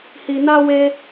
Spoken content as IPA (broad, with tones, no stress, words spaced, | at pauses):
hi˧na˦ we˦